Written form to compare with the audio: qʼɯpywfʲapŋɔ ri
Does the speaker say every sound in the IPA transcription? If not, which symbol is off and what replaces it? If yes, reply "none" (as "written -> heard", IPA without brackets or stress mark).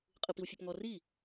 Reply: y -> i